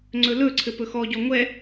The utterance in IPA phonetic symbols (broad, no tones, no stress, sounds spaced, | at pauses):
ŋ͡ǀ ɵ l ɵ ǀʰ ɘ p ɵ x ɔ ɟ ɔ ŋʷ ɛ